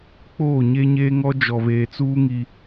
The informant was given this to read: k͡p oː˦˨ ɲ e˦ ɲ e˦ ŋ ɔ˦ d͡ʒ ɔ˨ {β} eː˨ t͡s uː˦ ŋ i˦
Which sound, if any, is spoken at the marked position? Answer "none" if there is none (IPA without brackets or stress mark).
β